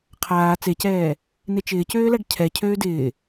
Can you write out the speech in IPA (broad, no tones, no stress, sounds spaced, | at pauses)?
qʰ aː t͡s e c ɛː | n e t͡ʃ ɪː c øː l a ɖ cʰ ɛ cʰ øː d ɪː